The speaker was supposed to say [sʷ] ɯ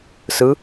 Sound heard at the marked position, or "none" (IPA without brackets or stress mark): s